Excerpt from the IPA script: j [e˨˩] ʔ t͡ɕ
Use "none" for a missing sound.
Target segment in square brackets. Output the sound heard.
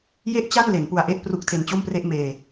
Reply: e˥˩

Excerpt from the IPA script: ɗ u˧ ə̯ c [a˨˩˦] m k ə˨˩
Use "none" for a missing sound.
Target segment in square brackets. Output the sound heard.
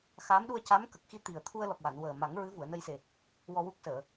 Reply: a˧˥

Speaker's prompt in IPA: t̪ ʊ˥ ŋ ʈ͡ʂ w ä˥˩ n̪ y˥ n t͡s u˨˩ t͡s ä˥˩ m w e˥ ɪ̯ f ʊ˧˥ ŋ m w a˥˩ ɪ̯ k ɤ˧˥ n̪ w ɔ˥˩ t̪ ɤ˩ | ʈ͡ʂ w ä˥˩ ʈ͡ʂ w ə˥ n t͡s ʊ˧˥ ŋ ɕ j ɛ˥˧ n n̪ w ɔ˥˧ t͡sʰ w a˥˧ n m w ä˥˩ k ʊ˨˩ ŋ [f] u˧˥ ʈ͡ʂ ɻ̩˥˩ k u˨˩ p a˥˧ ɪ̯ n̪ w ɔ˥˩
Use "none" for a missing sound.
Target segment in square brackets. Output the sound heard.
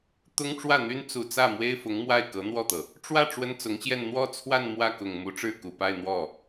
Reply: m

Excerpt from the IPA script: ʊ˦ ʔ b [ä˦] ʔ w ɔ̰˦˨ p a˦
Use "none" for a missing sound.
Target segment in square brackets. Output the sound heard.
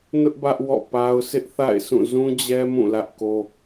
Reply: ä˦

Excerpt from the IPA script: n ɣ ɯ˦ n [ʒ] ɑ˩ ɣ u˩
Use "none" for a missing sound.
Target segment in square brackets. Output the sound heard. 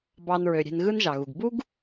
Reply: ʒ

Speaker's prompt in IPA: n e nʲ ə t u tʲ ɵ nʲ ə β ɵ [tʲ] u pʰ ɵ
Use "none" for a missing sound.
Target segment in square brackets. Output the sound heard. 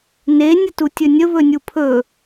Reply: nʲ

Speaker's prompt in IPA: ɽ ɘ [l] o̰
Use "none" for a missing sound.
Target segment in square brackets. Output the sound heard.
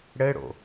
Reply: ɽ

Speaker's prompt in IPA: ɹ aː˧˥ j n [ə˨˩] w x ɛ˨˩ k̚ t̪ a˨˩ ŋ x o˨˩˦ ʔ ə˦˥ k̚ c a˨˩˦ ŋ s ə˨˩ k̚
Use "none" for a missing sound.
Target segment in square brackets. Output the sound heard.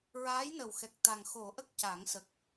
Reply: ə˨˩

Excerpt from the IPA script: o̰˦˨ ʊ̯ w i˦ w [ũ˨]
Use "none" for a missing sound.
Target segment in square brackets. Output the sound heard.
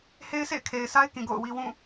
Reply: ũ˦˨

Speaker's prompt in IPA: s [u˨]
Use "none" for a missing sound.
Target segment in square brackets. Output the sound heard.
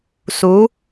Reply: u˨˦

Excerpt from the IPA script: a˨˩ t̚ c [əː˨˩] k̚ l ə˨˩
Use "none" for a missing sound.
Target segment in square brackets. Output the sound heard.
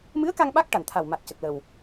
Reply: ə˨˩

